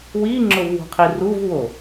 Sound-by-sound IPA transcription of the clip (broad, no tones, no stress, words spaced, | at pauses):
wiŋ͡ǁʊvwo̤qʰi ruvwo